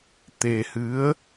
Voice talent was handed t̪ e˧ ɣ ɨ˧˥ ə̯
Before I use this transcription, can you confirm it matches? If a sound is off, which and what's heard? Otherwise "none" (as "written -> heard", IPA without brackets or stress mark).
ɣ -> h